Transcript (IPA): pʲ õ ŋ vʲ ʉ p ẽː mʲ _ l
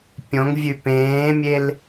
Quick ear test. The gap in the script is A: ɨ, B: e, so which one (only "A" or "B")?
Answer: B